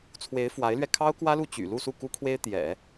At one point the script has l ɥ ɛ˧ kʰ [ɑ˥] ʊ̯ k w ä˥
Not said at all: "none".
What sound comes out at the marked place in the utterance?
ɑ˥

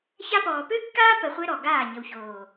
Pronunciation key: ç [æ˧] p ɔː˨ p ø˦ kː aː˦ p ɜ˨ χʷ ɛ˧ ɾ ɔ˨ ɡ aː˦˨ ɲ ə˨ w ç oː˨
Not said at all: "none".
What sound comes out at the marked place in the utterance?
a˧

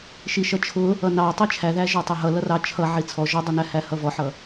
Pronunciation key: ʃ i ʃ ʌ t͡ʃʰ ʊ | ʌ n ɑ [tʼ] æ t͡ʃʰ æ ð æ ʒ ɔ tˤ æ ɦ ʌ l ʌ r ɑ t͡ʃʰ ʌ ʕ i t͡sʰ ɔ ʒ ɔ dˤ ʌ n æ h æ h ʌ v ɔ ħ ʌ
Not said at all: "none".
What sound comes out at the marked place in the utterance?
tˤ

